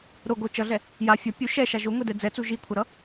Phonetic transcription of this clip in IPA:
ɾ o ɡ o t͡ʃ ʌ ɮ ɛ | j a fʲ ʌ pʲ u ʃ ɛ ʃ a ʒ o ŋʷ e d ɛ d͡z ɛ t͡s u ʒ i kʷʰ ʌ ɾ ʌ

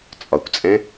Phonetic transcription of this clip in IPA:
t͡sʼ ɒ kʷ t͡sʼ ɛ̃

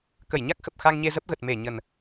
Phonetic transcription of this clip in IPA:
k ə˧˩ j ɲ a˦˥ k̚ x ə˨˩ p̚ x a˧ ŋ ɲ e˧ z ə˦˥ p̚ ɣ ə˨˩ t̚ m e˧˩ ɲ ə˨˩ n

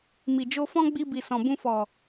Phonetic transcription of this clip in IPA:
m i˨ d͡ʒ o˧ f ɔ̃˦ ɡ͡b i˧ b i˨ s ɔ̃˨ b ũ˧ f ɔ˨

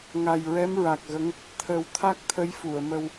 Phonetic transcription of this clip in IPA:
ŋ a˨˩ j ɹ ɛ˧˥ m ɹ a˨˩ k̚ ɣ ə˧˥ ŋ | t̪ʰ ə˨˩˦ w t̪ʰ a˦˥ k̚ t̪ʰ ə˧˥ j f u˨˩˨ ə̯ m ə˧ w

